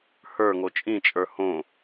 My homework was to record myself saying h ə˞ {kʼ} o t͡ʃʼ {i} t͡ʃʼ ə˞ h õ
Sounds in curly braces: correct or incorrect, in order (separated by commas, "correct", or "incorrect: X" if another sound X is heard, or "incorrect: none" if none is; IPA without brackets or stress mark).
incorrect: ŋ, incorrect: ĩ